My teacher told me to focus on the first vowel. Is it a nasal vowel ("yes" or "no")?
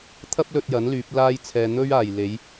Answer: no